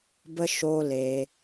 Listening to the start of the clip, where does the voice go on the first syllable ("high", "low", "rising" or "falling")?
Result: high